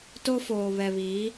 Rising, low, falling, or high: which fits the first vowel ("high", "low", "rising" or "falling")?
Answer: high